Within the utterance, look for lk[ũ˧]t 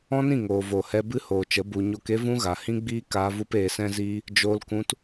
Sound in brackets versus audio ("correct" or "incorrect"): correct